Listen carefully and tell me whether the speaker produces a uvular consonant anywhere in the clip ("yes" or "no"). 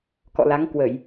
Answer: no